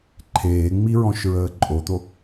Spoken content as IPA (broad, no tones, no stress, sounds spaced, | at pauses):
ǃʰ eː ŋ͡m i ɹ ɔ̃ ʃ ɹ əː ǃʼ o t̪ o